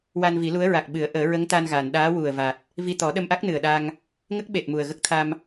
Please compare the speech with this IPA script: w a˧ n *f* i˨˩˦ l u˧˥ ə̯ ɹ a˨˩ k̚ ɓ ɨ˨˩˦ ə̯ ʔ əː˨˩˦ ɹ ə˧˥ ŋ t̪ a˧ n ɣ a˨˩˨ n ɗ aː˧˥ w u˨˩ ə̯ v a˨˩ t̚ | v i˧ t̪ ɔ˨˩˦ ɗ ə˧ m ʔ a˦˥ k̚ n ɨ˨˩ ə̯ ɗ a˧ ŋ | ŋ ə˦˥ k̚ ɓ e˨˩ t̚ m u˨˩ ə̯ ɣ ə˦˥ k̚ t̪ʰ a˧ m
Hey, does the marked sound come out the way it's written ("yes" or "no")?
no